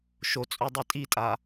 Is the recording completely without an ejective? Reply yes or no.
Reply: no